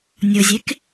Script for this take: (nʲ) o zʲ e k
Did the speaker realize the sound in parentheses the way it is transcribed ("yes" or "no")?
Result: yes